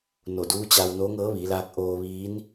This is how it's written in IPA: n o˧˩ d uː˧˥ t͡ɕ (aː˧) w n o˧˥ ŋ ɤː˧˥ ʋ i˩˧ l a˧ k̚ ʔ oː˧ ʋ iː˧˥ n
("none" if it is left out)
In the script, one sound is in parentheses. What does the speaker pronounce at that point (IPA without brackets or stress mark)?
a˧